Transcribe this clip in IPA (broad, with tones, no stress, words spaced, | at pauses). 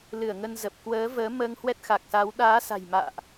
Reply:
lɨ˧˩ə̯ŋə˧nzə˨˩p̚ kwəː˨˦vəː˨˦məː˧ŋ hwɛ˦˥t̚xa˨˩k̚sa˨˦w ɗaː˨˦sa̤˨˩jma̰ː˧˨ʔ